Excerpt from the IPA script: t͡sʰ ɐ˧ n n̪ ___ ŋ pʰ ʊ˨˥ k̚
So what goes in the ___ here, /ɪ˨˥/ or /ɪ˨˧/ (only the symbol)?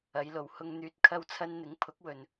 ɪ˨˥